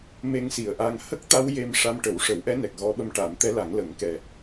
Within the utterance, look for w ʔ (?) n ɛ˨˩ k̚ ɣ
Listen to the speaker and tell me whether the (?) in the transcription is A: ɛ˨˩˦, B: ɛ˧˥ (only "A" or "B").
B